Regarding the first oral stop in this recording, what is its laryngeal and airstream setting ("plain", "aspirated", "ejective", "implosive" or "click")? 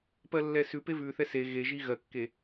plain